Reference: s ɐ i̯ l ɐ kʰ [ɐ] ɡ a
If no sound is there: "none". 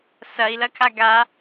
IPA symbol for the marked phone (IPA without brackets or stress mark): a